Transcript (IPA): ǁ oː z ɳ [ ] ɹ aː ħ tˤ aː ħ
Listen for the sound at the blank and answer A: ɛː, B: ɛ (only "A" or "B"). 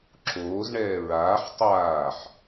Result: A